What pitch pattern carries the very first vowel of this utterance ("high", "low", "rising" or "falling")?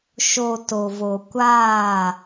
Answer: low